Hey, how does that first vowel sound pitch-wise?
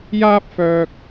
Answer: high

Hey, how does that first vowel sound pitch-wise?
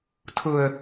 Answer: low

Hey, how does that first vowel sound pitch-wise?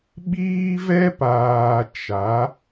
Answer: high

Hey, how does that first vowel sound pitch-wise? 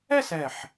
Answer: falling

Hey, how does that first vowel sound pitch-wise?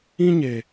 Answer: high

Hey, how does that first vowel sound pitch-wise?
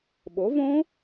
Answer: rising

